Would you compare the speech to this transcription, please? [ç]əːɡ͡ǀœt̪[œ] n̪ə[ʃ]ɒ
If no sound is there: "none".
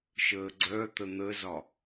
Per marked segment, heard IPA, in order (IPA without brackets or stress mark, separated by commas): ʃ, ə, z